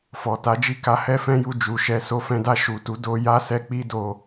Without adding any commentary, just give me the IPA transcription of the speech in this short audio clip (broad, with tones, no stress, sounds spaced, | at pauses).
f ɔ˨ t a˨˦ d͡ʒ i˦˨ k a˧ h ɛ˦ f ɛ̃˦ j u˧ d͡ʒ u˨ ʃ ɛ˨˦ s o˧ f ɛ̃˧ d a˧ ʃ u˨ t u˨˦ d o˧ j a˦ s ɛ˧ k͡p i˦ d o˧